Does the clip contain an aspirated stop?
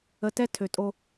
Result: yes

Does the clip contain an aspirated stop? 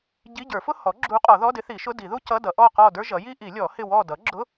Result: no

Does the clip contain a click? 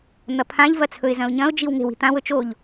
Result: no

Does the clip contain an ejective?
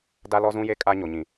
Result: yes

